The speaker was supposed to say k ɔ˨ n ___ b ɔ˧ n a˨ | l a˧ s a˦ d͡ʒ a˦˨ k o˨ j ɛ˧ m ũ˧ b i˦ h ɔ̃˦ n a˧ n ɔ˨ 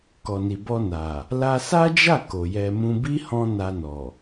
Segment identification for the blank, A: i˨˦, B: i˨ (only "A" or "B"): B